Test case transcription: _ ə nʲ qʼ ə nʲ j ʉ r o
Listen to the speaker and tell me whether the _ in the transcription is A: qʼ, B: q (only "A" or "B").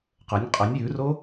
B